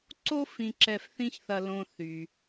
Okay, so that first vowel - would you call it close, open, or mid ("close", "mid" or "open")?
mid